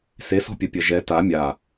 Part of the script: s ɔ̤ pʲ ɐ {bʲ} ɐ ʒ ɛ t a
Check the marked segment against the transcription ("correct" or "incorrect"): incorrect